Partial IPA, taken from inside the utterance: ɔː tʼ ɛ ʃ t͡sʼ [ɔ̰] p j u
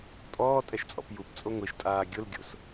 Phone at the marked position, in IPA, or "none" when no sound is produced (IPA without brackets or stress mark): ɔ̰